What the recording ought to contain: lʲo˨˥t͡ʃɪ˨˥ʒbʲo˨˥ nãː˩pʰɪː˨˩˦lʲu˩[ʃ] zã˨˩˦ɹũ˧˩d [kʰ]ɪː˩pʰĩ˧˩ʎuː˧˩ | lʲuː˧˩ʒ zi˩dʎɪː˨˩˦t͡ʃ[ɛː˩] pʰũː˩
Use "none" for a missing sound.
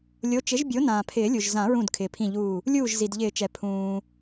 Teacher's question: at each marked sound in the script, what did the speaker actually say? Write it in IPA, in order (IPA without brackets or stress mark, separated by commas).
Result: ʒ, kʰ, ɛ˩